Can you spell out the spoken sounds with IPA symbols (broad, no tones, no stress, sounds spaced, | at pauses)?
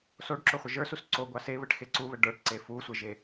s o ɖ ǁ o χʷ ə ʒ ə˞ s u s ǀ o ɡʷ ɑ s e β ə ʈ x e ǀ u β ə ɖ ə˞ ʈ ǀ e f u sʷ e ʒ e